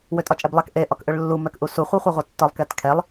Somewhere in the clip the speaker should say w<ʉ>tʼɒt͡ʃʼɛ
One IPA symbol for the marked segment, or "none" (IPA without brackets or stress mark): ø